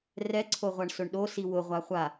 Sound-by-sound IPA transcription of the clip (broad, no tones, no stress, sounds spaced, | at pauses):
r ɛ ǀʰ o ʁʷ a ɳ s ʊ ɳ ɗ o s i w ʊ ʁʷ a χʷ a